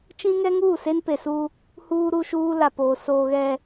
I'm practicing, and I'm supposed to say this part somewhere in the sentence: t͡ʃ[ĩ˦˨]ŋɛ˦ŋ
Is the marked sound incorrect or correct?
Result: incorrect